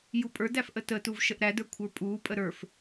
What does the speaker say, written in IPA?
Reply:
j u pʼ ə˞ d æ f ʔ ə t ə t u v ʃ ə ʔ ɾ æ d ə˞ kʷʰ ə˞ pʼ uː pʼ ə ɾ ə˞ f

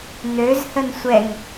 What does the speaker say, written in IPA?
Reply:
n̪ ø z h ə n sʷ ɛ ŋ

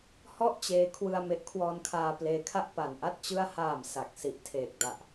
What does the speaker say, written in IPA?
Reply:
h ɔ˥˩ ʔ t͡ɕ eː˧ kʰ w ɯ˧ a̯ m e˦˥ ʔ kʰ w ɔː˧ n kʰ aː˧ p l eː˧ kʰ a˥˩ ʔ p a˨˩ n ʔ a˥˩ t̚ t͡ɕ ɯ˥˩ a̯ h aː˨˩ m s a˨˩ k̚ s i˨˩ ʔ tʰ eː˨˩ k̚ d a˨˩ ʔ

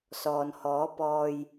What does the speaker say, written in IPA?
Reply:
s ɔː˨ n h ɔː˨˥ p ɔː˧ j

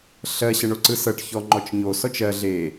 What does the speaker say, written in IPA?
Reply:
ɬ ɜ ɕ ə ɳ o ǀ ɯ s ɤ ʈ ç ɔ ŋ͡ǃ ɔ t͡ʃ ɲ o s ɔ t͡ʃ ɜ ɮ e

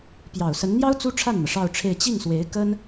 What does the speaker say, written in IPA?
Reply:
p j ɑ˨˩ ʊ̯ s ə˧˥ n n̪ j ɑ˥ ʊ̯ t͡s u˥ ʈ͡ʂʰ a˥˩ n n̪ ɤ˩ ʂ ɑ˥˧ ʊ̯ ʈ͡ʂʰ e˥˧ ɪ̯ t͡ɕ i˥˩ ŋ s w e˧˥ ɪ̯ k ə˥ n

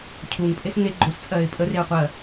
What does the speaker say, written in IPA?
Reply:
cʰ u ŋ pʼ e s ŋ e ɡ͡ǃ o s t͡sʼ ɜ ɪ̯ pʼ ə r e ʊ̯ qʷ ɜ

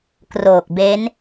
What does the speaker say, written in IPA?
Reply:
k r oː˨˩ k̚ b e˦˥ n

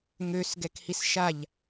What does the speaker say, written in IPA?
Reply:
ŋ ø s ɡ ɛ k h i s ʃ a ʎ

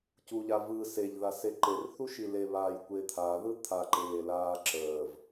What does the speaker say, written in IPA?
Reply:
c u ʎ a v ɯ s e ʎ ð a s e ǃ e r θ u ʃ i l e β aː j kʷ e t̪ʰ a ð ɯ t̪ʰ a ǃ eː l aː ǁ əː v

